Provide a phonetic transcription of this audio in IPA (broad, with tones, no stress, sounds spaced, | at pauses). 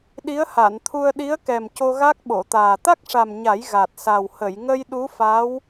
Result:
ɗ i˧˥ ə̯ h a˨˩˨ n t̪ʰ u˧ ə̯ ɗ i˧˥ ə̯ k ɛ˨˩ m c o˧ ɣ a˦˥ k̚ ɓ o˨˩˨ t̪ aː˨˩ t̪ a˦˥ k̚ ʂ a˨˩ m ɲ a˨˩˦ j ɣ a˨˩ t̚ s a˨˩ w h ə˨˩˨ j ŋ ə˧ j ɗ u˧˥ f a˧˥ w